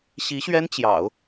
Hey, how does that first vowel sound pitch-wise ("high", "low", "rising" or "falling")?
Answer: rising